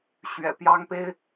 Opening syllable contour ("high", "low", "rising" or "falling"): low